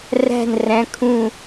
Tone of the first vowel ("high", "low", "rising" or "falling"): falling